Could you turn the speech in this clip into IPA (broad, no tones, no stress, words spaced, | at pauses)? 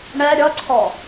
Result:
ɳɛ ɾʲʌǀʰɔ